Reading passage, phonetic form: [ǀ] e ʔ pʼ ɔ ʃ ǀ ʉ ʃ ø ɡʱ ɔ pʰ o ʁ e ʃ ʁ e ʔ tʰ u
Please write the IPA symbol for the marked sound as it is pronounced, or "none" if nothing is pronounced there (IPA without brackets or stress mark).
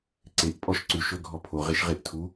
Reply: ǀ